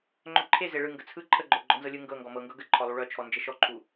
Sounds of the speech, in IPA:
ŋ͡ǃ œ ǃʰ e z e ɭ ɯ ŋ ɡ ə t͡sʰ ɯ ǃʰ ə ɡ͡ǃ œ ɡ͡ǃ ɔ n z ɤ lʲ ɯ ŋ ɡ ɤ ŋ ɡ ɔ m ɤ ŋ ɡ ɤ ɡ ə ǃʰ ɔ lˠ u ɭ œ t͡ʃʰ ɔ n d͡ʒ ə ʃ ɔ ǃʰ u

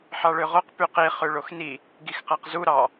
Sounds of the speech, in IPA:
ħ ɑ ɭ ø ʁ o q p y q i χ ø ɭ o x n i | ɡ i x q æ q z u ɾ ɑ

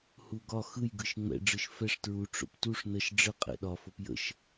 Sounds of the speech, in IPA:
h u ɡ ɒ x ɯ j ɡ ɯ ʃ ŋ͡m ɛ̰ ɖ͡ʐ ɯ ʃ f ɛ ʂ t ɹ u ʈ͡ʂ o̰ p t u ʂ n ə ʃ ɖ͡ʐ ə qʼ ɛ̰ ɗ ɒ f o p j ə̰ ʃ

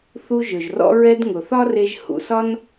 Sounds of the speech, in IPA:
θ u˧ ʒ ɵ˩ ʒ r ɔ̰˧ ɹ ɛ˧ d ŋ ʊ˩ θ ɒ˥ r e˧ ʒ h ṵ˩ s ɒ˥ n

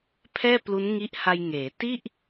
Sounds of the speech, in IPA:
pʰ ɛː˥˩ p l u˦˥ n ŋ i˦˥ ʔ h a˧ j ŋ eː˩˦ t i˥˩ ʔ

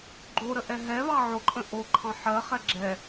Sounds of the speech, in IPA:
ɡ͡ǃ o ɾ ə ʔ ɛ ɦ ɛ β ɑ ʕ o ǃʼ ə̃ ʔ o ǃʰ ɑ̃ ħ ɜ χ ɛ ɡ͡ǁ ɛ

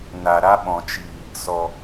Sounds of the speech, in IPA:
n a˨ ɾ a˦ ɓ ɔ̃˨ t͡ʃ iː˨ | s ɔ˨

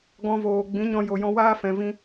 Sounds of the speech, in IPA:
ɡ ɔ̃˧ v oː˨ ɡ͡b ĩ˨˦ ɲ ɔ̃˧ j o˨ j ɔ̃˧ w aː˦ f ɛ̃˨ v ĩ˧

